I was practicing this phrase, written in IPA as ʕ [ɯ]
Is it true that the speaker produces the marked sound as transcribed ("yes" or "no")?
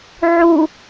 no